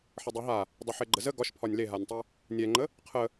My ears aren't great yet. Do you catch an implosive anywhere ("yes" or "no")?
no